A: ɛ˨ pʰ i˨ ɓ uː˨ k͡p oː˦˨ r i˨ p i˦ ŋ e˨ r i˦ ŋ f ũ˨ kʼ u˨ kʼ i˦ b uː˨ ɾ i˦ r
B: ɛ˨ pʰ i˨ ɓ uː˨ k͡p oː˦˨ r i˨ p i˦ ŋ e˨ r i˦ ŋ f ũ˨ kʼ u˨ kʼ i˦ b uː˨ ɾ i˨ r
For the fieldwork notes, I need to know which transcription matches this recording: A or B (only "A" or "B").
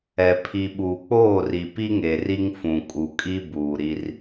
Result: A